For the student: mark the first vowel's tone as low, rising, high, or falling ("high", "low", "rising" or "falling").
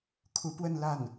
rising